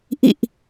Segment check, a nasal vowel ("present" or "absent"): absent